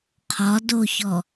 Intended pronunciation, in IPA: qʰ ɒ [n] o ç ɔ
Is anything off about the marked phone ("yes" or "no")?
yes